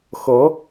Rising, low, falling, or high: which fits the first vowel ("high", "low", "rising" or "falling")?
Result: rising